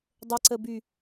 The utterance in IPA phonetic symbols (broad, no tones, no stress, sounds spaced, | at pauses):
dˤ ə ǀ ə b y